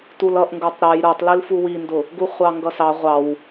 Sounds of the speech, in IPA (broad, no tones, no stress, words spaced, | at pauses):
tulʌʔŋɡə˞tˤ ɾəj ɾə˞tˤlil fuwindʊ | ɡuχʷɑŋɡʌsɑ ʁʷɑw